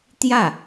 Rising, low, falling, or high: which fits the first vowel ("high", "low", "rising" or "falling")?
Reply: falling